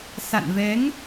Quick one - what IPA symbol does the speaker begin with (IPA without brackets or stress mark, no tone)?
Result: s